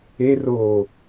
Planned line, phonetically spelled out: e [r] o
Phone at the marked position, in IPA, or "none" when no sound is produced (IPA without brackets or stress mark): r